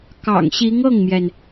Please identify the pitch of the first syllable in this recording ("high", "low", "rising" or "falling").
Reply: low